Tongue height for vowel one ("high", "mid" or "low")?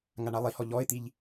low